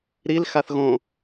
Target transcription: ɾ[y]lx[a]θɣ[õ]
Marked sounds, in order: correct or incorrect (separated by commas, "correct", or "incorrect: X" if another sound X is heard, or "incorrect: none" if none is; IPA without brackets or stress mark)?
incorrect: i, correct, correct